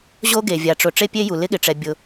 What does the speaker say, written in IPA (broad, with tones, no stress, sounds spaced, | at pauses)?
ʑ o˥ ɡ e˩ vʲ a˩ ʈ͡ʂ ʊ˩ ʈ͡ʂ e˥ pʲ e˥ j u˩ l ɪ˥ ɠ ɪ˩ ʈ͡ʂ ɛ˩ bʲ ʊ˩